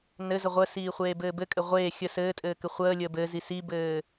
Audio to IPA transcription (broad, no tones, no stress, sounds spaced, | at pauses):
n ɘ z ə ʁʷ ə s iː χʷ eː b ɘː b ɘ kʼ ɘ ʁʷ eː xʲ ə s ɘː tʼ ɘː k ɘ χʷ əː lʲ əː b ɘ z i s i b ɘː